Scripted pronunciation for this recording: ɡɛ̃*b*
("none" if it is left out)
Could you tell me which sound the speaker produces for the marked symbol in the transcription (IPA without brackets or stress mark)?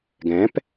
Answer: p